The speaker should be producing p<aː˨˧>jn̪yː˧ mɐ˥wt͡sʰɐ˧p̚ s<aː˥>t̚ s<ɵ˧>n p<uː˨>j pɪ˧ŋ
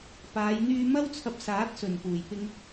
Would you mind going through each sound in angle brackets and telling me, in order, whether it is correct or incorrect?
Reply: correct, incorrect: aː˨˥, incorrect: ɵ˨˩, incorrect: uː˨˩

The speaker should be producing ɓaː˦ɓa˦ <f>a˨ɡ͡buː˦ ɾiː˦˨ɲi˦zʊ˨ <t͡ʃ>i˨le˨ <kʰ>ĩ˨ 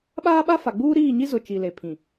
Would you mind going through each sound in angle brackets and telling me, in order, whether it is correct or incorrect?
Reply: correct, correct, incorrect: pʰ

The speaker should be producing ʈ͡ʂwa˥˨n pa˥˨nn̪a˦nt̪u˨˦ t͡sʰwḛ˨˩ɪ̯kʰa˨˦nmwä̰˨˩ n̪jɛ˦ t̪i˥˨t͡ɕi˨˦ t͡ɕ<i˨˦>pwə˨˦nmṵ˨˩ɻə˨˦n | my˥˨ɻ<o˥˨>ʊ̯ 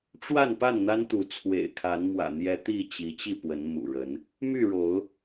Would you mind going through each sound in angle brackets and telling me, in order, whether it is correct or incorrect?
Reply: incorrect: i˥˨, incorrect: o˨˦

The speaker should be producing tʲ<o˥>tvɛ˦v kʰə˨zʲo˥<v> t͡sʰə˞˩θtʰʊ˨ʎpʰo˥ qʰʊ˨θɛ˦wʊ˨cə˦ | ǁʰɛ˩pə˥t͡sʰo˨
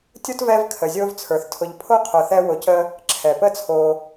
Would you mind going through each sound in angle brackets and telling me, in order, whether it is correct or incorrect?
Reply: correct, correct

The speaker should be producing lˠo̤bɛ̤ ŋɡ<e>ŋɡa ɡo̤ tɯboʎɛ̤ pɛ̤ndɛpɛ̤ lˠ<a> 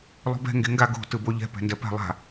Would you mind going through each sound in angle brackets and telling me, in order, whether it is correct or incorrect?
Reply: correct, incorrect: a̤

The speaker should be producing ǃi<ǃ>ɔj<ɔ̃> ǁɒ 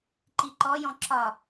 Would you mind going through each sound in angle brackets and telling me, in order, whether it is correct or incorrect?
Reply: correct, correct

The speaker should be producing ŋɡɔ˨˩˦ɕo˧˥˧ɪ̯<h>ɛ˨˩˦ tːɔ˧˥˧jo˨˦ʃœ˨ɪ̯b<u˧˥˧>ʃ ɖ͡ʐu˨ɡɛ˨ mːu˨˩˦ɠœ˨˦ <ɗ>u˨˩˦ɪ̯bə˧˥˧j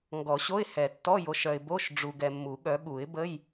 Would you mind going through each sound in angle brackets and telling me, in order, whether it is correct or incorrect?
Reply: correct, incorrect: o˧˥˧, incorrect: ɠ

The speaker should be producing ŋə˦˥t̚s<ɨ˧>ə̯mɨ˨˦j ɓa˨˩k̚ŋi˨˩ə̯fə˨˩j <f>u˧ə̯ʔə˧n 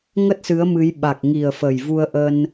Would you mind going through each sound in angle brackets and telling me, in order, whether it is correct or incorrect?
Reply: incorrect: ɨ˨˦, incorrect: v

